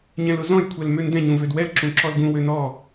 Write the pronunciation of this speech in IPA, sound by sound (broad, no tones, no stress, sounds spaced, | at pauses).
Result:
ɲ ɛ̃ l ʊ z ɔ̃ j kʷʰ ɛ l m ø n d ɛ̃ ɲ ũ v ø d w ɛ l ǁ ũ ǁ ɔ l ɡ ũ w ø n ɔ